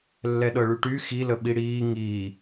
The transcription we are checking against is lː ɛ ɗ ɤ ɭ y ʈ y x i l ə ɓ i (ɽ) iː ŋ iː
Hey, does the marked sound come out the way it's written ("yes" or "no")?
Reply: yes